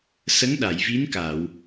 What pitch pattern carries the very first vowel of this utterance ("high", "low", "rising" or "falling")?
rising